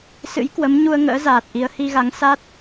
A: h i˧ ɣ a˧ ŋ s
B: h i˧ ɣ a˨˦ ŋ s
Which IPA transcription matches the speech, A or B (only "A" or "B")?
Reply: B